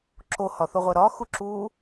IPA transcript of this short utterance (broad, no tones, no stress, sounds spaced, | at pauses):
ǁ o h ɒ θ o ʁʷ æ ɾ ɒ x u ǁ uː